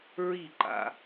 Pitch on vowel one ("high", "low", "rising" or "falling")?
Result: falling